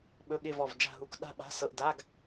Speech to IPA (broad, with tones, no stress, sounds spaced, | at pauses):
ɓ ɵ˧˥˧ ɠ ɪː˥˧ v ɔ˥˧ v d͡ʒ a̤˥˧ ɦ u˧˥˧ k ɗ a̤˥˧ ɓ a̤˧˥˧ s ɤ˧˥˧ ʔ d a˧˥˧ ɡ